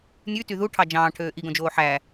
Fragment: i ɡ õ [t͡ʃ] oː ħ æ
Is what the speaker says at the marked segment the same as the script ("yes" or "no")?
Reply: no